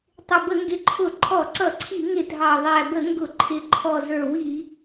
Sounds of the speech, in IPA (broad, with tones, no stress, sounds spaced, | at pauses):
tˤ ɪ˨˩ b ə˧˩˧ ŋ ɡ ɪ˨˩ ǃʰ ʊ˧˩˧ ǃʰ ɔ˧˩˧ ǀ ʌ˧˩˧ ǀʰ i˧˩˧ ŋ ɪ˧˩˧ dʱ ɑ˨˩ ðˤ æ˨˩ b ə˧˩˧ ŋ ɡ ʊ˧˩˧ ǃʰ ɪ˨˩ ǃʰ ɔ˨˩ z ə˞˨˩ w i˧˩˧